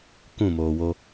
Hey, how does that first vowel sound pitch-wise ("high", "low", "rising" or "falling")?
falling